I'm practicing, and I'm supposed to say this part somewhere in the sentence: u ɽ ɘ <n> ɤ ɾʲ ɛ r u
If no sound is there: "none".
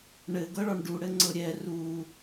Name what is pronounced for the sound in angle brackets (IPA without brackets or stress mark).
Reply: ŋ͡ǀ